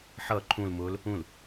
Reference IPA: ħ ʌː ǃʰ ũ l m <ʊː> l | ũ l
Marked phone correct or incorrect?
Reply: correct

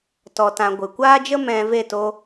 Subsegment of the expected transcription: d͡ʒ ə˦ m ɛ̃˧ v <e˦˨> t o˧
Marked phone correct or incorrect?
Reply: correct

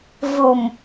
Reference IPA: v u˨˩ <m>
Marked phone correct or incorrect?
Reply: correct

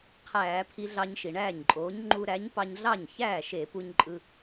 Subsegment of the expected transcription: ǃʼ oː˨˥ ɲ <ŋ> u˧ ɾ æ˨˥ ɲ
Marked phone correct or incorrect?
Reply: incorrect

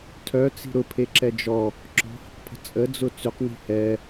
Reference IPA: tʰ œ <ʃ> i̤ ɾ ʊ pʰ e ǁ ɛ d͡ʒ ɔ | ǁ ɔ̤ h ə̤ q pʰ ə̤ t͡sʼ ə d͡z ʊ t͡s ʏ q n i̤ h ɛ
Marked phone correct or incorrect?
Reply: incorrect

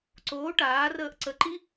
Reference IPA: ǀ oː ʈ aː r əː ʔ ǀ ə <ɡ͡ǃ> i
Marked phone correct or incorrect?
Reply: incorrect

